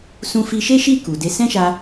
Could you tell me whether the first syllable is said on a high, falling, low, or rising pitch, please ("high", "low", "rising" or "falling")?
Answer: high